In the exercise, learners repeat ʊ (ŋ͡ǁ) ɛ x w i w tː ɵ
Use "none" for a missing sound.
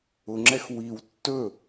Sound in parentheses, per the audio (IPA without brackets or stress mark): ŋ͡ǁ